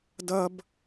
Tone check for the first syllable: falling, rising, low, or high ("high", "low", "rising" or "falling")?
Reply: high